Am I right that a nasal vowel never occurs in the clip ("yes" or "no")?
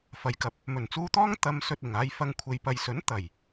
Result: yes